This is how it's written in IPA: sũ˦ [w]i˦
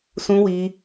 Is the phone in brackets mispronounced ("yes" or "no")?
no